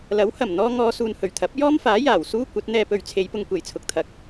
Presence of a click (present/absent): absent